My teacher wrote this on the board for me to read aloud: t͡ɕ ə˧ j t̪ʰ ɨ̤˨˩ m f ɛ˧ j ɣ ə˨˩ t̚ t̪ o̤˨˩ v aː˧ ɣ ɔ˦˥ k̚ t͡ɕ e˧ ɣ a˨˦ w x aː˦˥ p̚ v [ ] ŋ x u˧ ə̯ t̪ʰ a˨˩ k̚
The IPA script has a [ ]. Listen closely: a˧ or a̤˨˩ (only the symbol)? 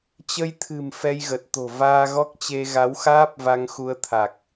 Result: a˧